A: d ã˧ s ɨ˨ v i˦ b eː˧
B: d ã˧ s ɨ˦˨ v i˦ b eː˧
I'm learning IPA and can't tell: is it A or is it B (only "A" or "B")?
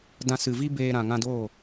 A